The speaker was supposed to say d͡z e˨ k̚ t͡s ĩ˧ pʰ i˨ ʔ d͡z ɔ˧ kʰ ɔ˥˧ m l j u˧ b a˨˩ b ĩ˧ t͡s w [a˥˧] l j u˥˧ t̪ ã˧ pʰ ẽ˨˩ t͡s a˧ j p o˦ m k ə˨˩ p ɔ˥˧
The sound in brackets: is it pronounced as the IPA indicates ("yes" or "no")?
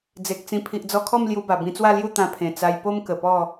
yes